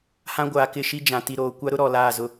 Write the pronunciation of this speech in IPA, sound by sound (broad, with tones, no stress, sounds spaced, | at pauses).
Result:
h ã˦ ɡʷ aː˨ k ɪ˦˨ ʃ i˦ d͡ʒ ã˨ t i˨ ɾ oː˨ kʷ a˦ ɾ ʊ˦ ɾ ɔ˨ l aː˦˨ z ʊ˦